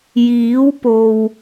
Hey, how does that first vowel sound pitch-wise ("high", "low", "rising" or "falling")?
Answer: rising